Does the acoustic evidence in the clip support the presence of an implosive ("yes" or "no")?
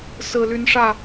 no